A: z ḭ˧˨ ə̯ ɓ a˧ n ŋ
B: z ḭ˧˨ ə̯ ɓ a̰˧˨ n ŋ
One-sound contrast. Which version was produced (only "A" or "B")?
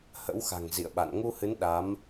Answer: B